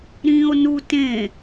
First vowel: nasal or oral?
nasal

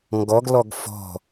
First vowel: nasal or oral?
oral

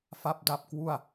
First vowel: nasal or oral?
oral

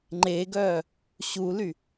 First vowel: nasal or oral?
oral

